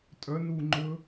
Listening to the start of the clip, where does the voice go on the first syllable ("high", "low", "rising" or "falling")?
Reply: rising